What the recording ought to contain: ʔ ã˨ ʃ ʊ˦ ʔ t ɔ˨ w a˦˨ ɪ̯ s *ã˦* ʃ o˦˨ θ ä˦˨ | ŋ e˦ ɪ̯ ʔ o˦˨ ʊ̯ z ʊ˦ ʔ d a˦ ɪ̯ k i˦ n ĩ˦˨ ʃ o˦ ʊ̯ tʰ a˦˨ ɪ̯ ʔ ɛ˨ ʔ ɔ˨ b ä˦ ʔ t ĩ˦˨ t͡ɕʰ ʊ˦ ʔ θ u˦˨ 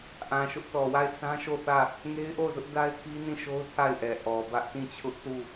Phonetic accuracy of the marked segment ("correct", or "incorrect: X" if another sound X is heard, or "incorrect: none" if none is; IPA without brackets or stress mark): correct